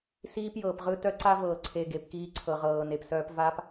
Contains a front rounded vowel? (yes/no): yes